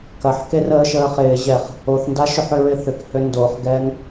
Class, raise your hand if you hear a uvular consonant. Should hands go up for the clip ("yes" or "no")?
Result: yes